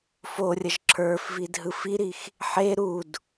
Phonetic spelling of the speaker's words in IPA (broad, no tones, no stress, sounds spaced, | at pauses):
f o rʲ ə ʒ ǁʰ ə˞ f v i d ɦ ɯ f i ɾ i x | ħ e ɾ u d